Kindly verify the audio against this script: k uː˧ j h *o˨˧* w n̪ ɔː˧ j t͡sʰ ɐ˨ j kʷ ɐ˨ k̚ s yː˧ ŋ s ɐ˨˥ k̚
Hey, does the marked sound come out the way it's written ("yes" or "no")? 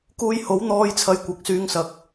no